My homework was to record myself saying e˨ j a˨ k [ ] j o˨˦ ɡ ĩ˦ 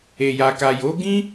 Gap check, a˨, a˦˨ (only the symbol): a˨